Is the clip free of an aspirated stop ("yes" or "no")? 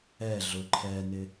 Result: no